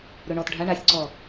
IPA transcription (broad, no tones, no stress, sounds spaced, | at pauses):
ɾ ɵ ɳ ɔ t ɖʱ a ɳ a sʲ ǀ ɔ